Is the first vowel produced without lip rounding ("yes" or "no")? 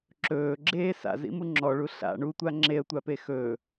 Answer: no